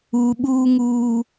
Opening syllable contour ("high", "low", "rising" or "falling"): low